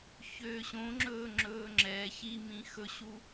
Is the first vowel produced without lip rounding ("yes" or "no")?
no